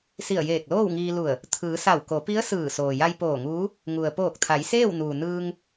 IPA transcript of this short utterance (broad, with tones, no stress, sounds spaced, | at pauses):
s i˧˩ ə̯ j eː˧˩ k̚ l oː˥˨ w ŋ iː˧ l u˧˩ ə̯ | t̪ʰ ɯː˩˧ s a˧˩ w k o˩˧ p i˧˥ ə̯ s ɯː˧˩ s oː˩ j a˧ j p oː˧˩ ŋ uː˧˥ | ŋ u˩ ə̯ p oː˧˩ k̚ t̪ʰ a˩˧ j s eː˥˨ w n uː˩ n ɯː˧ ŋ